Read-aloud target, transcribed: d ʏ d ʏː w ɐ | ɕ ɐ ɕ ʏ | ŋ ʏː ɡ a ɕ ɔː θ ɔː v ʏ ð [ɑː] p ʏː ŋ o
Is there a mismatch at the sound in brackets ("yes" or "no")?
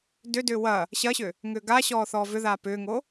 yes